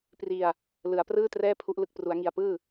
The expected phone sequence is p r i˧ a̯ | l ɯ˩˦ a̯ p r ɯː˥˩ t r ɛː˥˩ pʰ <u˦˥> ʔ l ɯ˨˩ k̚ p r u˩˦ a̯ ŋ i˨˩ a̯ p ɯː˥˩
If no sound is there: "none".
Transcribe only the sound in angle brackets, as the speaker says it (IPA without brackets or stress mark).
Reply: u˦˥